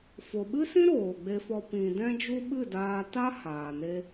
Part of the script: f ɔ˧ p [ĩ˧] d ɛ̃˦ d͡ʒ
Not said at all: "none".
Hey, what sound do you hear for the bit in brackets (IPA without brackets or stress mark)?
ĩ˧